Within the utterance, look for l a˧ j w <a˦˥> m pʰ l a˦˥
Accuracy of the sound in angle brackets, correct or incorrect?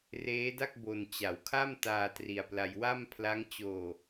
incorrect